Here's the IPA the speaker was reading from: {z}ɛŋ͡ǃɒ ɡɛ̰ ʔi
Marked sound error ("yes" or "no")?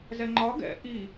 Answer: no